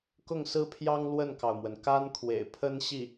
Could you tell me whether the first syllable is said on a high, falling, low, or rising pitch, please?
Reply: falling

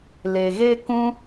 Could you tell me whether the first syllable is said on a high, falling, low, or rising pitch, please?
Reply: low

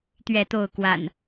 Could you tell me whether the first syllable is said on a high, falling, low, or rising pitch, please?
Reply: falling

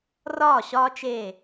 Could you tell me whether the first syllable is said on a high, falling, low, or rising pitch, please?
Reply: falling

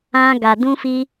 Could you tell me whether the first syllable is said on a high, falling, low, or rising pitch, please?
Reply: high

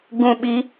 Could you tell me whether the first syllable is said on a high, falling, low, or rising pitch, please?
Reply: low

